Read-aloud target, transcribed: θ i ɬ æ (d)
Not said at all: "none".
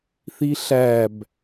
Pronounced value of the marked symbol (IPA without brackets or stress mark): b